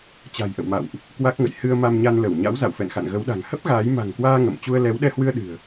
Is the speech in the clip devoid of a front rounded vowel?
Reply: yes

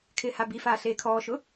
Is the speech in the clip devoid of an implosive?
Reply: yes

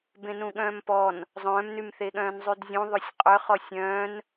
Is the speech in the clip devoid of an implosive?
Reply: no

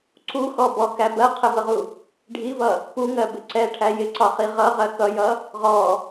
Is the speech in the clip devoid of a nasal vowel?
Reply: yes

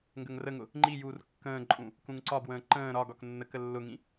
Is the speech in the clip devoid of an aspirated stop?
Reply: yes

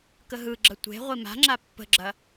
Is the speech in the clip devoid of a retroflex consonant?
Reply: yes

